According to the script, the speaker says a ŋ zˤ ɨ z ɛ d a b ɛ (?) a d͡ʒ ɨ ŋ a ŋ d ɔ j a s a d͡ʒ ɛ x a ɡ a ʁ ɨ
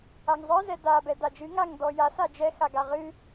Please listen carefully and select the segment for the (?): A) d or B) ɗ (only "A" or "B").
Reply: A